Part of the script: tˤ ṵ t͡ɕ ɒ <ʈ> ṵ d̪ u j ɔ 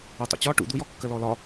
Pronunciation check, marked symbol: correct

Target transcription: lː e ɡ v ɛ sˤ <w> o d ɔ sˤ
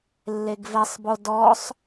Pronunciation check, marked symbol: incorrect: b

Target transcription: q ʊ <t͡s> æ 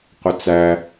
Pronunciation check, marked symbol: correct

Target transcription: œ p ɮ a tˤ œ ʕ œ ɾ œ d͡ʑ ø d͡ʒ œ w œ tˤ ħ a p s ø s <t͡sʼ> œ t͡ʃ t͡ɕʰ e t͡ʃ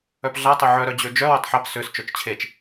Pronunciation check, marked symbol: incorrect: t͡ʃ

